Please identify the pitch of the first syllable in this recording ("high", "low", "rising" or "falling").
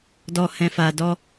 low